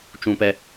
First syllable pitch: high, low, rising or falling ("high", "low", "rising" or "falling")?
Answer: high